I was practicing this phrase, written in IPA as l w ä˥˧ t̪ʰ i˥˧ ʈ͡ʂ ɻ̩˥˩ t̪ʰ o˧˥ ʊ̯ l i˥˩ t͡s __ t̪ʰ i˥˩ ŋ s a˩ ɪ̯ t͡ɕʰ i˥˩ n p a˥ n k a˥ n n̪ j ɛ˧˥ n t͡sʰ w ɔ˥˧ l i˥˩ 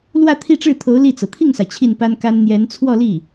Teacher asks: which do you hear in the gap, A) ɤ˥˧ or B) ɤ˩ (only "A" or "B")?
B